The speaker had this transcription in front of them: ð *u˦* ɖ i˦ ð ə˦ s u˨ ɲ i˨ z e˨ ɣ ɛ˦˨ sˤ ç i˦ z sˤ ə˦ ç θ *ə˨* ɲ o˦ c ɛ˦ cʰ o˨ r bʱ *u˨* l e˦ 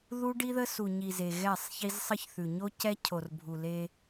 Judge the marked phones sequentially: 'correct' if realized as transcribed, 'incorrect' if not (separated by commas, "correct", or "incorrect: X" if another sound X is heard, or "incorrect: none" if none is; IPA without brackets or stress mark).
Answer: correct, incorrect: ʉ˨, correct